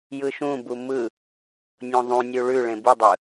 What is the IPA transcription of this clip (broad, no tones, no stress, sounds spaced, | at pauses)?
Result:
j ɯ ʃ ũ b u m ɯ | nʲ õ ðˤ ũ nʲ u ɭ ʉ ɭ ẽ b ɯ dˤ ɯ